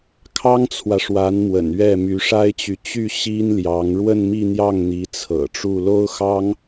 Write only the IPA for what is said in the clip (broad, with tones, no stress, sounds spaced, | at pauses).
kʰ ɑ˥ ŋ t͡sʰ w ä˨ ʂ w a˧˥ n m w ə̰˨˩ n ɥ ɛ˥˩ m y˧˥ ʂ a˥ ɪ̯ t͡ɕ y˨ t͡ɕ y˥˩ ɕ i˥ n l j ɑ˧˥ ŋ ɻ w ə˥˧ n m i˥˧ n̪ j ɑ˥˩ ŋ n̪ i˧˥ t͡sʰ ɤ̰˨˩ ʈ͡ʂ u˥˩ l o˥ ʊ̯ x ɑ˥ ŋ